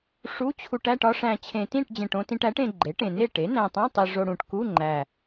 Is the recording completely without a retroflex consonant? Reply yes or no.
no